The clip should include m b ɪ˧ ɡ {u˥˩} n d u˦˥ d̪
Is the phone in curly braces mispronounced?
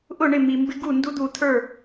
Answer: no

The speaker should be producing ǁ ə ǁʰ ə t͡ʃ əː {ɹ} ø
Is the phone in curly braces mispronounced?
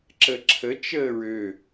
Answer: no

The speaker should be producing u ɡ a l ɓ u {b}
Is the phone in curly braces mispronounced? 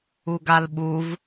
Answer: yes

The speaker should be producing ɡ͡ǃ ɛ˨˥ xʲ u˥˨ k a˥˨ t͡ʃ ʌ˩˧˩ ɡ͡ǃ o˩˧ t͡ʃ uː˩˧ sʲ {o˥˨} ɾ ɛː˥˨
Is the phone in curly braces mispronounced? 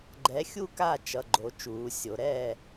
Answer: yes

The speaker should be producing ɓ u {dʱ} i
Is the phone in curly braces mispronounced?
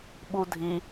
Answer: no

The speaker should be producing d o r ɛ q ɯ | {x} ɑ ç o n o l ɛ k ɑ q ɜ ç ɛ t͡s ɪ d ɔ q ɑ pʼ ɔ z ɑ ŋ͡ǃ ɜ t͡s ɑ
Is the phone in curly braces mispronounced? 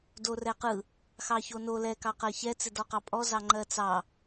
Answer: no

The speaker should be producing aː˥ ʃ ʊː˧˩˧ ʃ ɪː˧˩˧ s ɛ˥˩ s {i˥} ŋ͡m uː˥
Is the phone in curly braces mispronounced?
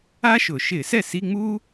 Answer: yes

